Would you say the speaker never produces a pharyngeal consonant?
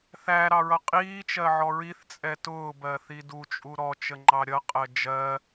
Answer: no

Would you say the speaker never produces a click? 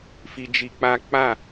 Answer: yes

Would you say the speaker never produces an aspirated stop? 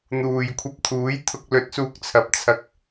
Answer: no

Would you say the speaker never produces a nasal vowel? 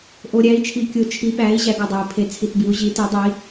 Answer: yes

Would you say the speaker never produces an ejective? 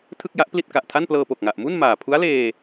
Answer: yes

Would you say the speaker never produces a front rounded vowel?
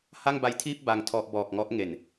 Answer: yes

